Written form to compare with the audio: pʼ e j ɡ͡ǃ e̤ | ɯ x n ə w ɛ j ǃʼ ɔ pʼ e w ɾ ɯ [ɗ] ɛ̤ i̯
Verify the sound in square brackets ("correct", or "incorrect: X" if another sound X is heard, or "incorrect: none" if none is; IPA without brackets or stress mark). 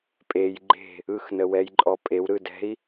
incorrect: d